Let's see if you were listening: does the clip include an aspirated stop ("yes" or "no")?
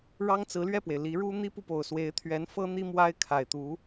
yes